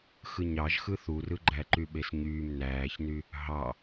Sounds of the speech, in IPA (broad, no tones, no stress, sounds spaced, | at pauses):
x ɯ ɲ ɑ ʒ x ɯ θ u r ɯ ɡ͡ǃ æ ǃ y ɓ e s ɲ yː m n æː ç n y | ɦ ɑ